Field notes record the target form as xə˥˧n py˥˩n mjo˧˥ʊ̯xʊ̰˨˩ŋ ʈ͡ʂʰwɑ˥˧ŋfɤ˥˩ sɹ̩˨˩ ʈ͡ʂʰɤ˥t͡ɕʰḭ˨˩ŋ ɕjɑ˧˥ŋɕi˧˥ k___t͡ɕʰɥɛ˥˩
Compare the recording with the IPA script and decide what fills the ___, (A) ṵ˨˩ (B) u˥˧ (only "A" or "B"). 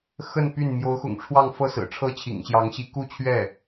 B